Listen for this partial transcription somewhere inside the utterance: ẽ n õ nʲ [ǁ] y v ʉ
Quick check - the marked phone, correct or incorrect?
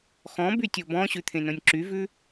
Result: correct